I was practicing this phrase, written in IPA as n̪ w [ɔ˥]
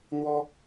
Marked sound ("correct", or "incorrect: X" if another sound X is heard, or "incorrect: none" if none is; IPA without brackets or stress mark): correct